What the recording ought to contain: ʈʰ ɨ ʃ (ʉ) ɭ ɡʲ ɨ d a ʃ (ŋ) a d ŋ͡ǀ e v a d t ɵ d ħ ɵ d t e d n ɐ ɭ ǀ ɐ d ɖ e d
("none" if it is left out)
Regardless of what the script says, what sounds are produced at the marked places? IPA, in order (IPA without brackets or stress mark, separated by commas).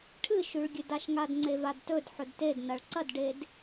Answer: ʉ, ŋ